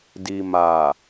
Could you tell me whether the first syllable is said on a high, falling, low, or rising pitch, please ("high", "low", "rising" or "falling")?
low